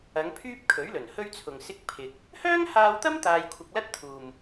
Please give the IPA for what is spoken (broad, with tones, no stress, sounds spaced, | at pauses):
ɐ˨˧ ŋ pʰ yː˥ p̚ kʰ ɵ˨˥ ɥ l ɵ˨˩ n h ɵ˥ ɥ t͡sʰ ʊ˨ ŋ s ɪ˧ k̚ pʰ ɪ˧ k̚ | h œː˥ ŋ h aː˧ w t̪ ɐ˥ m t̪ aː˧ j kʷʰ ɪ˧ k̚ l ɐ˥ t̚ t̪ʰ uː˨ m